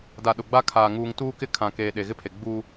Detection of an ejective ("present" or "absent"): absent